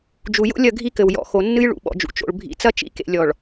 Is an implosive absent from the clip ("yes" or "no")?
no